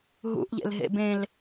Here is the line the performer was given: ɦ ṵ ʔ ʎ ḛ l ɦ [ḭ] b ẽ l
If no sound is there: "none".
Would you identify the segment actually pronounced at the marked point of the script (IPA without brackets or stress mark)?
ḛ